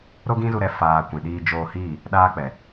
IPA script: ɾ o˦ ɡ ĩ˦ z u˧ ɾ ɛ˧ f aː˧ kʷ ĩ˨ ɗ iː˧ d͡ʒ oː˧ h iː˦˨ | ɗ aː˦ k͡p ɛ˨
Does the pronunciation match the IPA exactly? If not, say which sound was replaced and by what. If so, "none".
none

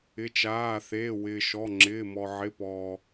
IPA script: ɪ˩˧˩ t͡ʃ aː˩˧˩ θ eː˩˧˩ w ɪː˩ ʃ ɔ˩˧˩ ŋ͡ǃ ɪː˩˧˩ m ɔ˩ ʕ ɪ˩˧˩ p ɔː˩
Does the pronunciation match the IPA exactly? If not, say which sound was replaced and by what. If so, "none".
ŋ͡ǃ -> ŋ͡ǁ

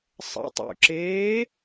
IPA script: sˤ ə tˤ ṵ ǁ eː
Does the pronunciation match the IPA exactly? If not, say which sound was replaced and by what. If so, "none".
ə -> ə̰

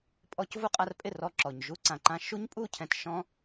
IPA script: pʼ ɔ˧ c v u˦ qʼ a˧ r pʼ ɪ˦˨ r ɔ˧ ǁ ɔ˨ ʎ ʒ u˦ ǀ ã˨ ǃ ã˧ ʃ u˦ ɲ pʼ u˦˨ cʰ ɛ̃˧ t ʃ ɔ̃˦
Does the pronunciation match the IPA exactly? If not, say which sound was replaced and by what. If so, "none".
ʎ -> ɲ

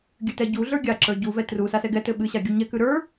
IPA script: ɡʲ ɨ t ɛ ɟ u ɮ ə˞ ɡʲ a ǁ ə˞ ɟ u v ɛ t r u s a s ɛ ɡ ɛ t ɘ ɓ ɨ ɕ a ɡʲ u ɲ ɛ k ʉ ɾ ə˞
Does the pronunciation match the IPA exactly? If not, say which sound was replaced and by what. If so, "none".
none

